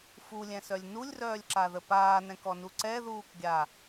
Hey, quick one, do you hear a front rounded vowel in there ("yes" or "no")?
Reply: yes